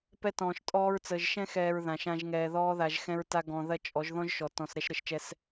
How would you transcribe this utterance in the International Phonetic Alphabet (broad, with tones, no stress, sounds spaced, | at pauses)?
p ɛ˦ t ɔ̃ː˧ ʃ tʼ ɔː˧ ɹ t͡s əː˨ ʒ ʃ ɛ̃˦ x ɛː˧ ɹ ð ã˨ ʃ ã˧ ʒ ŋ ɛː˨ ð ɔː˧ ð a˨ ʒ x ɛ̃˧ ɹ t a˧ ɡ ɔ̃˨ ð ɐ˧ t͡ʃʼ ɔ˨˦ ʒ ð ɔ̃˦ ʒ ʃ ɔ˨ t ɔ̃˨ s ɾ ɛ˧ ʃ ɾ ə˨ ʃ t͡ʃ ɛ˧ s